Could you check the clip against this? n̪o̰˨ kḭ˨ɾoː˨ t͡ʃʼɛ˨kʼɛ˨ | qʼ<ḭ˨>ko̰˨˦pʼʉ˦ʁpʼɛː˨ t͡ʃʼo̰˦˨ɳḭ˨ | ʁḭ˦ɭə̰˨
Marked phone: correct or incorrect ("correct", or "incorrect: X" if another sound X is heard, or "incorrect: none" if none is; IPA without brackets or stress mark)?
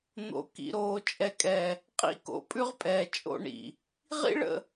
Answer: incorrect: ḭ˦